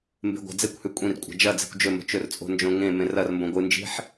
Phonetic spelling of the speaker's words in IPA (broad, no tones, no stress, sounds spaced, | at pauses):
m b e̤ ɡʷ a̤ d͡z e kʷ h ʉ kʷʼ ĩ r kʷʼ a̤ d͡ʒ ɐ d͡z e̤ kʷ d͡ʒ ɵ m o̤ t͡ʃ ɵ r t͡sʼ o̤ n d͡ʒ õ ŋ ẽ m ẽ r ɐ r m b õ ɡʷ ɨ n d͡ʒ i̤ ħ